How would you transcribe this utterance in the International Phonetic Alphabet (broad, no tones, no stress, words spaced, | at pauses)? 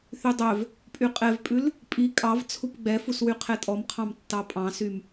θydˤœv | pʼyqʼɛvpʼʉl | pʼi kʼɑv t͡sʰupɡ͡bɛfuswy qʰɛtʼɔmqʰɑ̃m tːɑpʼɑ̃sym